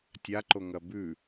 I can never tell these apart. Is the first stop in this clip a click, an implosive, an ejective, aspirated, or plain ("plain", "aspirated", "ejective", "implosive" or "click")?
plain